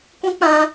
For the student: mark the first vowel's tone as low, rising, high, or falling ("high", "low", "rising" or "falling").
high